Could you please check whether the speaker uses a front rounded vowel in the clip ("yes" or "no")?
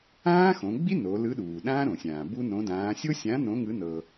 no